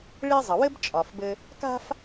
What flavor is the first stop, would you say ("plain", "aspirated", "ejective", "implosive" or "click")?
plain